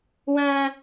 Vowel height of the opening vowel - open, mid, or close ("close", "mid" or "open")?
open